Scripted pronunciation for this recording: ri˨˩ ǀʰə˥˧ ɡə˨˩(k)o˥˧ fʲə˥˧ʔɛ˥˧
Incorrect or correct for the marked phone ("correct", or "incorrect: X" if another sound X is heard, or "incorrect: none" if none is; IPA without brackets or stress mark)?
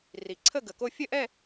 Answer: correct